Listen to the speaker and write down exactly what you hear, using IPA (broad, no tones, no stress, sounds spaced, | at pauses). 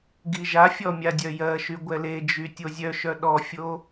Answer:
ɡ i ʒ a fʲ ɔ mʲ a dʲ œ j ɜ ʃ y ɡʷ ɛ l e d͡ʒ y tʲ o zʲ œ ʃ œ ɗ ɔ fʲ o